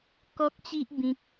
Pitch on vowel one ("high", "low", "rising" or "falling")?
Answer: high